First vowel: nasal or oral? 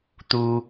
oral